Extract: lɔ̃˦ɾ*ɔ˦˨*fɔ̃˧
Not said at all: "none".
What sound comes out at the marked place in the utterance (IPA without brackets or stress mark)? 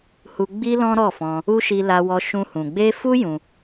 ɔ˦˨